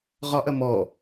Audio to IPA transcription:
ʁ ɒ ʔ ɐ m ɔ

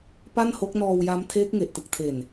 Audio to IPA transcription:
p a˥˩ n h o˦˥ k̚ n ɔː˧ w j a˦˥ m tʰ eː˦˥ k̚ ŋ e˨˩ ʔ t ɯ˨˩ k̚ tʰ e˨˩ n

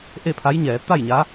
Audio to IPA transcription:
ʔ e˥˨ pʰ a˧˥ j ɲ ɛː˩˧ t̪ a˥˨ j ɲ a˧˥

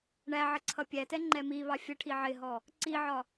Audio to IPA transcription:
ɳ æ ʕ ə ǀʰ ʌ pʲ æ t ɛ ŋ͡ǃ ɛ m i β ɑ fʲ ə ʈʰ i ʕ ɪ ɦ ɔ | ǀ i ʕ ɒ

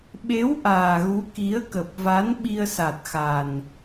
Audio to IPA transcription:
ɓ e˨˦ w ʔ aː˨˩ ɣ u˨˦ k i˨˦ ə̯ k ə˨˩ p̚ v a˨˦ n ɓ i˧ ə̯ s a˨˩ t̚ x a˨˩ n

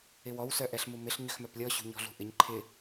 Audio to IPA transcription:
ɪ w ɔ w s œ ʔ ɛ ɬ m u m ɪ ɬ ɲ ʏ x m œ p lʲ ɔ ɕ ṳ ɲ ɔ̤ ɮ ṳ ʔ ɪ ɲ ǃʰ ɪ

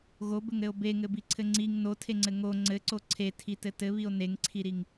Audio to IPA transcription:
ɣ o b ɘ ŋ ɾ ɘ o̯ b e ŋ ɘ b i ǀʰ ɘ ŋ͡ǀ i ŋ n o tʰ e ŋ͡ǀ ɘ ŋ o ŋ͡ǀ ɘ ǀ o ǀʰ e tʰ i t ɘ t ɘ β i o̯ n e ŋ ǀʰ i ɾ i ŋ

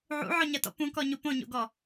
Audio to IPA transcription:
ʕ ṵ ʕ ɔ ɲ ɐ t ɔ̰ p ũ k ɔ ɲ u p õ ɲ o̰ ɡ ɔ

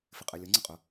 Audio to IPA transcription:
f ɪ qʼ ɛ lʲ ʌ ŋ͡ǀ ʌ qʼ ʊ

